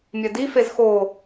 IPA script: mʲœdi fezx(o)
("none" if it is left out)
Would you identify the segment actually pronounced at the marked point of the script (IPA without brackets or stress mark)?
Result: o